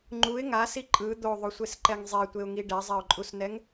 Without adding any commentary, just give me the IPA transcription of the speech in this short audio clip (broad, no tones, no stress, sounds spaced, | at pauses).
ŋ͡ǃ u ɪ̯ ŋ a s i ǃʼ ɯ d̪ o ðˤ o sʷ e s ǃ ɛ ŋ zˤ e tʷ e ʊ̯ ŋ i ɖ ɛ zˤ ɛ ʊ̯ ǃʼ u s n ɛ ŋ